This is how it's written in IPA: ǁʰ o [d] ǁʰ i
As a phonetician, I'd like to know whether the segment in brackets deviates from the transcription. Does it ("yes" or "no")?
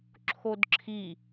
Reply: no